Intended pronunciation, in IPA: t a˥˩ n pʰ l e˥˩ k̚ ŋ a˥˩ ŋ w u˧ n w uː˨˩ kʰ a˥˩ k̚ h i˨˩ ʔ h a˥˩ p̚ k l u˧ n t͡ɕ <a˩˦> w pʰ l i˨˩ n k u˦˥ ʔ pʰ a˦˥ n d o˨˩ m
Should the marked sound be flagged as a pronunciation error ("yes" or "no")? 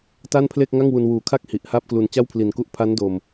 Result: yes